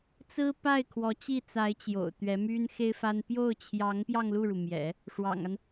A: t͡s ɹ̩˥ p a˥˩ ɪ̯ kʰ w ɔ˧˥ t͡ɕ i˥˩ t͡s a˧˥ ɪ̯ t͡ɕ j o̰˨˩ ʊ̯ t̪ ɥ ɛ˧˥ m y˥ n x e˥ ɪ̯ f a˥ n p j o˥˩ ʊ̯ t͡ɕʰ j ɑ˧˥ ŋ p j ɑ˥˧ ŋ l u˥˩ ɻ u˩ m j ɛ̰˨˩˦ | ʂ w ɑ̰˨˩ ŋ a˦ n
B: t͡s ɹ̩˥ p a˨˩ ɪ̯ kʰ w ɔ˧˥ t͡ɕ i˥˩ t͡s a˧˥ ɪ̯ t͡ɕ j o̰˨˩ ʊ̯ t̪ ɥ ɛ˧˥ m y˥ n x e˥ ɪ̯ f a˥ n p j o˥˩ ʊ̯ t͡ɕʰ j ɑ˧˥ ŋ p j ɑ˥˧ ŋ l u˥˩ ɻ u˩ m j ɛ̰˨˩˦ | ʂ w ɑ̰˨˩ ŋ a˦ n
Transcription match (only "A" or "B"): A